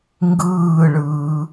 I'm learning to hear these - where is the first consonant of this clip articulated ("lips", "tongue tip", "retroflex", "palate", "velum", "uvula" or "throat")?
velum